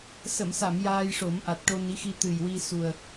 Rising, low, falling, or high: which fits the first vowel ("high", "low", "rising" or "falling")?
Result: low